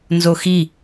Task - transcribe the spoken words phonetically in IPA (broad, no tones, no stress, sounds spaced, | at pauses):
n z o x i